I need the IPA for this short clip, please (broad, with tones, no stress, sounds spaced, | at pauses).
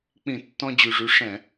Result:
k͡p ĩ˧˩˧ tː ɔ̃˧ d͡ʑ y˨˩ ʐ y˨˥ ʂ ɛ̃˧˩˧